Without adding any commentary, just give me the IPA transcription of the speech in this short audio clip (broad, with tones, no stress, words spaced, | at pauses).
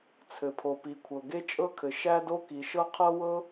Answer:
t͡sʰɘ˩pʰo˩pi˩ kʷʰɤ˩ɡe˥t͡ʃʼɤ˥kʰɘ˩ ʃæ˥do˥ki˩ʃɤ˥ qʰɤ˥wɤ˥